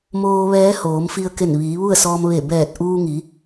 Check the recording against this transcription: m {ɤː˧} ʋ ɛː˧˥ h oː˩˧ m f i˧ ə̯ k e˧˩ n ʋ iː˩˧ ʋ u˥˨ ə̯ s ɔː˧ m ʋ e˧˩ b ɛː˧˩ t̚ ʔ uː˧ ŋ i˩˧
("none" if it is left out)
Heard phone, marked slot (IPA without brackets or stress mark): oː˧